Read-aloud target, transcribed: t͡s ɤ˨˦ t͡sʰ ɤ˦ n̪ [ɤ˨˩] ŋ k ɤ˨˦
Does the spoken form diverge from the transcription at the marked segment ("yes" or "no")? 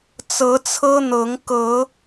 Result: yes